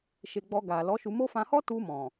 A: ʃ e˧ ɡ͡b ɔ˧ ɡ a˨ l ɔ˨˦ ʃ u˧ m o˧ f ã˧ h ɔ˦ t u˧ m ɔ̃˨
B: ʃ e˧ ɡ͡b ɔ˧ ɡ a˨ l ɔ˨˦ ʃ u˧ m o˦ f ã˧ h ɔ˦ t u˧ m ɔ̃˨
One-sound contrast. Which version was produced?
B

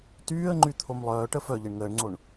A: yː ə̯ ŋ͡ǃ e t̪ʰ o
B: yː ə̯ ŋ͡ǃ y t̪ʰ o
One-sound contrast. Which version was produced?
B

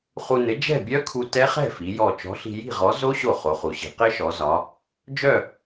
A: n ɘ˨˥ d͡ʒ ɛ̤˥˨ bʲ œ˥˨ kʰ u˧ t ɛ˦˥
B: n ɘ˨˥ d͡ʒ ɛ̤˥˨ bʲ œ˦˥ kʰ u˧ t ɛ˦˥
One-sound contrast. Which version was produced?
B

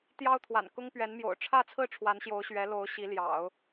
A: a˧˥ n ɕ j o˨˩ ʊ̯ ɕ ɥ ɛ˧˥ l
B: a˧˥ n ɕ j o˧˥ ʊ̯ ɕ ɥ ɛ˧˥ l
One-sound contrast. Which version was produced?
B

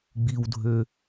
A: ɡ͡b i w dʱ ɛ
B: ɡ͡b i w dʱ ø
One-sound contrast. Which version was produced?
B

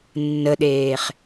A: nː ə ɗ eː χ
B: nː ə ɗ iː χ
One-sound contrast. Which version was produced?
A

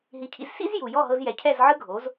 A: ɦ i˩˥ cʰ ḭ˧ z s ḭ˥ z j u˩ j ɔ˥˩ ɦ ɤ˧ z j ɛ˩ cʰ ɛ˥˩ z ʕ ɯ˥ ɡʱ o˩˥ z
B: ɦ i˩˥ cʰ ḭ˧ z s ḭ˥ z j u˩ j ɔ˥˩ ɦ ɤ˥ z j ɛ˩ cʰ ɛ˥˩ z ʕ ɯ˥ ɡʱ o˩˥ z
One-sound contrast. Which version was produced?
A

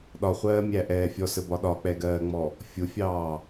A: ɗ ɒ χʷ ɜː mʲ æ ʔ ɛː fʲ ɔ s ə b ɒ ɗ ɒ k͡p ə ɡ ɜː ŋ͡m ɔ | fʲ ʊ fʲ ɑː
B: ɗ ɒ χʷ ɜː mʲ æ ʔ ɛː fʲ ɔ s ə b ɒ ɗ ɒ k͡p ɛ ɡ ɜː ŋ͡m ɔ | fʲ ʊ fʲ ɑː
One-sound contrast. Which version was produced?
B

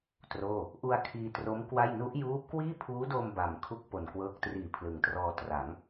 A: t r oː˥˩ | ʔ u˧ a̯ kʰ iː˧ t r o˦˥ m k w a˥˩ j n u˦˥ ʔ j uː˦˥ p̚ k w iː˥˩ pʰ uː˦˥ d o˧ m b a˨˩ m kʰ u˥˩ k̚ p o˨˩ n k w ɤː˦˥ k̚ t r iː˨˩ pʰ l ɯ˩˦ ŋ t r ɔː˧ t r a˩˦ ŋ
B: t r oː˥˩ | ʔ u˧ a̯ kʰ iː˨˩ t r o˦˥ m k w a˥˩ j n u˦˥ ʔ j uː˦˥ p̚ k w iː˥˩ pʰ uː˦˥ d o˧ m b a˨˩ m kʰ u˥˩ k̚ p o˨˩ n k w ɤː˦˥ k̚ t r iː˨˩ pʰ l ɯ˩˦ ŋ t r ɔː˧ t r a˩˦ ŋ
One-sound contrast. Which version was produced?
A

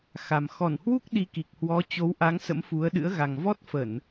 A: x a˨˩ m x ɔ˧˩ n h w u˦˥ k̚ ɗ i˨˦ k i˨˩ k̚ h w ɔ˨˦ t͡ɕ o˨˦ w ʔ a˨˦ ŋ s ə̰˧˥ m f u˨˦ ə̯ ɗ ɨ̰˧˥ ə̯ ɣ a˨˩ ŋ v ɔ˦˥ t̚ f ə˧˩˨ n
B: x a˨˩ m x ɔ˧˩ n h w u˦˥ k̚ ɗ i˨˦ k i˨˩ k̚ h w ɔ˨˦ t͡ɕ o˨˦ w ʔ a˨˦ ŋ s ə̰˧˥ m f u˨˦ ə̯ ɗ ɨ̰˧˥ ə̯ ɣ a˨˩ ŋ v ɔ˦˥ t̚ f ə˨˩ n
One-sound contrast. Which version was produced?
A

